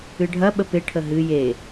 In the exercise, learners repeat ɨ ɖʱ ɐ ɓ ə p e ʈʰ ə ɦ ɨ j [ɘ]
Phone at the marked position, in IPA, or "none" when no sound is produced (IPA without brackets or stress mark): e